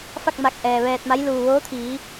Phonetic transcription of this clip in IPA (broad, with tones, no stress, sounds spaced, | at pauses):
f a˥˨ k̚ m a˧˩ k̚ ʔ ɛː˩ ʋ ɛː˧ t̚ m a˧˥ j l uː˩ ʋ oː˧˥ t̪ʰ iː˩˧